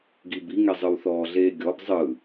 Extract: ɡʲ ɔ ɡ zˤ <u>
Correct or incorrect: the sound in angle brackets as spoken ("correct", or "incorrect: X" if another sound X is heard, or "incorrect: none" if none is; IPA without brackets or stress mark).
incorrect: ɯ